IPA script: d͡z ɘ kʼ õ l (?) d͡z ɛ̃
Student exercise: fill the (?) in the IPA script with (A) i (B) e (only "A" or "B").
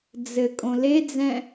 B